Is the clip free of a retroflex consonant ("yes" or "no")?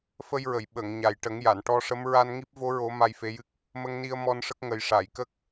no